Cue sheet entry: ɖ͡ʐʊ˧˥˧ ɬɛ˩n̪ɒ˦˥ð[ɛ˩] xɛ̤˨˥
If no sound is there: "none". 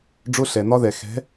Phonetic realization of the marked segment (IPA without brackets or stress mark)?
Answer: ɛ˩